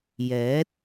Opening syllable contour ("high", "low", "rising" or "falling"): rising